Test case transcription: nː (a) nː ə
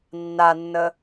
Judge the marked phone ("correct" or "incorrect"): correct